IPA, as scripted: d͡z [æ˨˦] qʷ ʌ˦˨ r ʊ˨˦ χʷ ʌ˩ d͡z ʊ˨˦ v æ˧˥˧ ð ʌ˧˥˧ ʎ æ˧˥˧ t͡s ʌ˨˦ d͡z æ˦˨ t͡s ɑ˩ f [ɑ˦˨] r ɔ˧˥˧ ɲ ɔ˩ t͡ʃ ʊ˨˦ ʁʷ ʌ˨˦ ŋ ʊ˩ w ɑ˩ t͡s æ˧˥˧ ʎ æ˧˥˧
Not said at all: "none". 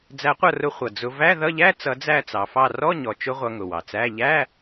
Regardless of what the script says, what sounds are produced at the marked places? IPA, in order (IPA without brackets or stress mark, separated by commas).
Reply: æ˨˦, ɑ˦˨